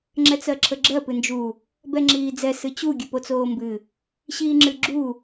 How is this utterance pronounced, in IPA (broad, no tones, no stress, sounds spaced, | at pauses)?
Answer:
ŋ͡ǁ ɛ t͡s ɜ ǁʰ ə ɡ͡ǁ ɜ p ɨ n d͡ʒ u | b ɛ ŋ͡ǁ iː d͡z ɛ s ɨ t͡ɕ u ɡʲ ɨ p o t͡s oː m b ɨ | ɕ iː ŋ͡ǁ ɨ ɡ͡ǁ u